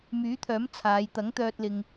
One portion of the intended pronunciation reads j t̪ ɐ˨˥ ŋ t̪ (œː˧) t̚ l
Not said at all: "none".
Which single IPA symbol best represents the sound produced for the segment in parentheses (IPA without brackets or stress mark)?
œː˧